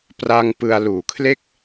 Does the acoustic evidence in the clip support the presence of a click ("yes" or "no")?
no